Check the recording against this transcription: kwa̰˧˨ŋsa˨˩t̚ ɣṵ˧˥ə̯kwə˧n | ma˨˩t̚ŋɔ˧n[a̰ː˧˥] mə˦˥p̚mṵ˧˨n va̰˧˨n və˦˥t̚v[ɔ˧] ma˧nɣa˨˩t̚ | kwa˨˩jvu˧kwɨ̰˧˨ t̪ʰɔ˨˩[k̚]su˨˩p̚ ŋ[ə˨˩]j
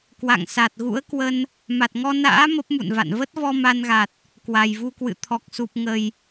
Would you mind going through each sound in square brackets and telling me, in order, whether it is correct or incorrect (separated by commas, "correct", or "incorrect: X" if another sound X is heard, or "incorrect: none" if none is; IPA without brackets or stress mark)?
correct, correct, correct, correct